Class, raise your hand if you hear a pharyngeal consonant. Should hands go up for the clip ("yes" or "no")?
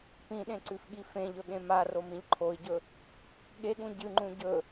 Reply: no